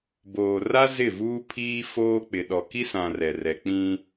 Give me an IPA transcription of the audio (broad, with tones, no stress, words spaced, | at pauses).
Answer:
boː˨ra˦ zɪ˦˨vuː˦pʰiː˦ foː˦k͡pɪ˨ɗɔ˨ ki˦sã˨ rɛ˨rɛ˨k͡pĩ˦